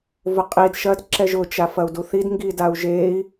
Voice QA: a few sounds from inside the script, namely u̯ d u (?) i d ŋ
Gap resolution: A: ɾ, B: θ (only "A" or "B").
B